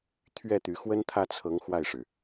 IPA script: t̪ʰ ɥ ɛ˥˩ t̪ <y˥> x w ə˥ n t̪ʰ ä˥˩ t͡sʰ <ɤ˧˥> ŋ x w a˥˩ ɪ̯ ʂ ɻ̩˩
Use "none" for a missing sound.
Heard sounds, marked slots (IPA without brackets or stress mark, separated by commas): y˧˥, ɤ˧˥